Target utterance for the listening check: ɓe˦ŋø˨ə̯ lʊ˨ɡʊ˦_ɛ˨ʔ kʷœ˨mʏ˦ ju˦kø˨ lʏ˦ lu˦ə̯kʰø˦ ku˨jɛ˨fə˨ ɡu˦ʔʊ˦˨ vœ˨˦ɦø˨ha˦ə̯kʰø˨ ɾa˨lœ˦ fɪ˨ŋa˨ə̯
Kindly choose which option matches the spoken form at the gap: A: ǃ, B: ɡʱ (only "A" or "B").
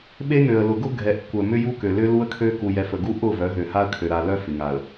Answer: B